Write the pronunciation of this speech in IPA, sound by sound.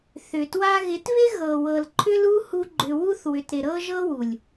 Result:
θ ʏ˨ t w a˦ ɣ ɪ˨˦ t β ɪ˦ ɣ ɤ˨ w ɤ˨ l ǃʰ ʏ˦ l u˦ h u˦ ɡ͡ǃ ʏ˦ w u˦ θ w ʏ˨ t ɾ ɪ˨ ɾ ɤ˦ ʒ ɤ˦ w u˨ lʲ

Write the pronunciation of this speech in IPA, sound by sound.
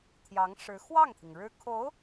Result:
t̪ʰ j ɑ˧˥ ŋ ʂ ɻ̩˧˥ x w ɑ˥˩ ŋ t̪ʰ i˩ ŋ ɻ ɻ̩˥ kʰ o˧˥ ʊ̯

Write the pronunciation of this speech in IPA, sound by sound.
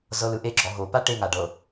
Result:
z ɤ l ɯ ʔ e ɡ͡ǁ ɔ ɦ o p a ʈ e ŋ a ɖ ɤ

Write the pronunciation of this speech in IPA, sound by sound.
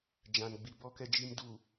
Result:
d͡ʒ ã˨ n ɡ͡b i˨ b ɔ˨ k ɛ˨ d͡ʒ i˨ m d uː˨

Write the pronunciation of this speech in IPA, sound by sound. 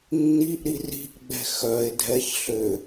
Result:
nː i ʔ ɾ i r i̤ ʔ ɡ͡b ɛ̤ x œ e̯ dʱ ɛ ç ɬ ʏ

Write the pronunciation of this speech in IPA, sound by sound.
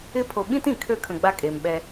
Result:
ɪ˦ pʰ o˨ ɓ ĩ˦ t ĩ˨ kʰ ø˦ kʰ ə̃˨ ɡ͡b a˦ kʼ e˨ m ɓ ɛ˦

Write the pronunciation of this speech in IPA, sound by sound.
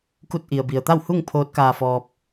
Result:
k u˧ t̚ ʔ i˩ ə̯ b i˩ ə̯ t̪ a˥˨ w h u˥˨ ŋ pʰ oː˧˥ t̚ k aː˧ f ɔː˧ p̚

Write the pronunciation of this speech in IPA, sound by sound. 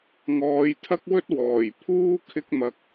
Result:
ŋ ɔː˨˧ j t̪ʰ ɐ˥ k̚ w ɵ˥ t̚ w ɔː˨˩ j pʰ uː˥ kʰ ɪ˧ k̚ m ɐ˨ k̚

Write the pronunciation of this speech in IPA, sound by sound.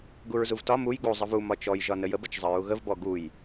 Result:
ɡ u ɹ z u v t ɒ m u j ɡ u zˤ ə v u m ɒ t͡ʃ ɔ j ʒ ɒ n ə j ə b ə t͡ʃ zˤ ə ɹ u ɣ ə v b ɔ ɡ u j

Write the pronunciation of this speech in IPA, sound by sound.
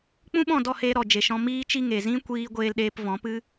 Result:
k͡p ũ˦ ɓ ɔ̃˦˨ d ɔ˦˨ h e˧ ɾ ɔ˨ d͡ʒ e˨ ʃ ɔ̃˧ m iː˦ t͡ʃ i˦ ŋ e˨ z ĩ˦ kʷ iː˦ ɡʷ eː˧ l ɗ eː˧ p v ɔ̃˨˦ p ɨ˦

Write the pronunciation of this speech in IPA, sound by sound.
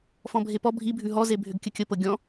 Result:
f ɔ̃ bʱ e p ɔ bʱ i bʱ ʉ ɦ ɔ z e bʱ ʏ ɡ kʲ ə kʲ ə p ɤ ɡʲ ɔ̃

